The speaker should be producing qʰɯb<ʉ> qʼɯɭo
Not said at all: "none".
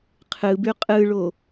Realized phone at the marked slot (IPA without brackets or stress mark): ʉ